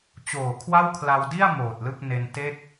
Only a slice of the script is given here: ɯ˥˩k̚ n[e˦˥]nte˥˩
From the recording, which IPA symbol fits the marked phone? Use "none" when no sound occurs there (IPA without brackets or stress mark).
e˧